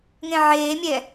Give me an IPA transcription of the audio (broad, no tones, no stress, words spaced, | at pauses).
ŋẽʕeːmʲɛ